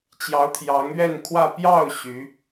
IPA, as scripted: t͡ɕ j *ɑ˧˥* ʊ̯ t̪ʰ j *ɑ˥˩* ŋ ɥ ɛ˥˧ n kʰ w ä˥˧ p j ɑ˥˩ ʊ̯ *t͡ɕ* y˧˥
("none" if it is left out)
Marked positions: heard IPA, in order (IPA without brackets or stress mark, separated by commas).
ɑ˧˥, ɑ˧˥, ɕ